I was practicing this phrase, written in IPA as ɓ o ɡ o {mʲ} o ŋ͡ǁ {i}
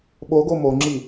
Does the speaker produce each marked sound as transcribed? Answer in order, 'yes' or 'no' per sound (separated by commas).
no, yes